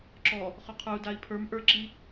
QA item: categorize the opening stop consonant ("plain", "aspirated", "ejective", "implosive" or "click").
click